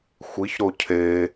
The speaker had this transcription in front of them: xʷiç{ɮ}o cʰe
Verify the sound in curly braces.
incorrect: ɾ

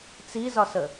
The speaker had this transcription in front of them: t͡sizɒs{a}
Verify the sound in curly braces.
incorrect: ə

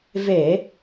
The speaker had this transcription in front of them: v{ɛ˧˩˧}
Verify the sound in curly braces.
incorrect: e˧˩˧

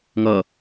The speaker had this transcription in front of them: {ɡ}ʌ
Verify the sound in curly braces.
incorrect: ŋ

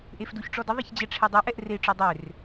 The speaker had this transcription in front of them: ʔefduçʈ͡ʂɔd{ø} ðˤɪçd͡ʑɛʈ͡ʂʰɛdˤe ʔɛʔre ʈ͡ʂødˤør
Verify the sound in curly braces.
incorrect: ə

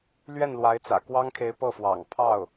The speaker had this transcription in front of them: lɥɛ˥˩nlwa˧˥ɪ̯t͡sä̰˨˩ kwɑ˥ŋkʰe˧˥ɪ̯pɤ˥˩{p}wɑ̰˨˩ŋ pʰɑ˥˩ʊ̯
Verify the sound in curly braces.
incorrect: f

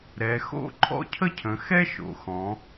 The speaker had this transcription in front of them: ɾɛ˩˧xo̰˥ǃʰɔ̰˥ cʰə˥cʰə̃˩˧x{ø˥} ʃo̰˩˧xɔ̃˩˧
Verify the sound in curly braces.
incorrect: ɛ˥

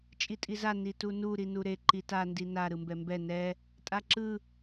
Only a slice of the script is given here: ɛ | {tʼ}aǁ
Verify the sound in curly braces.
correct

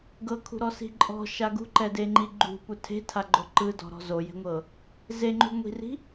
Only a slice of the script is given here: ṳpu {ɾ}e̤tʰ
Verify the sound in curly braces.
incorrect: tʰ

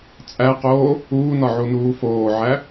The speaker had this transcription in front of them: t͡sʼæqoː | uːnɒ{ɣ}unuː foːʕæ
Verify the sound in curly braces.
incorrect: ʕ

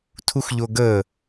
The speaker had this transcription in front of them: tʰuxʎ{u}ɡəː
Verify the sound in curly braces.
incorrect: o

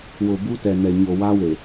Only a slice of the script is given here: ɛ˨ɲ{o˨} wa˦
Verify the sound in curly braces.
correct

